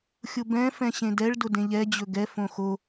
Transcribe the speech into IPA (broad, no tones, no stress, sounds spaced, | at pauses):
xʲ ʊ b ɛ̃ f ɛ̃ ɕ ẽ d ɛ ɭ d ʊ d ẽ ʎ ɛ d͡ʑ ɵ ɡ ɛ f õ x o